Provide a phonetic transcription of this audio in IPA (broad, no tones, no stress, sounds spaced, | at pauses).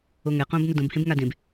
o ŋ ɛ q õ b n o d õ b h ẽ b ŋ a d ẽ b